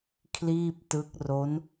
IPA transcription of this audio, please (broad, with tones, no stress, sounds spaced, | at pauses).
kʰ l iː˥˩ p̚ t ɯ˦˥ k̚ r o˦˥ n